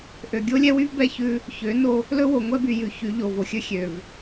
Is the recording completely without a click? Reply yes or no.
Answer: yes